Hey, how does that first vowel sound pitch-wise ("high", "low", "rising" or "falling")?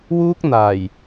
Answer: high